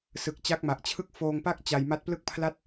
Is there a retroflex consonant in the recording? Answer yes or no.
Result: no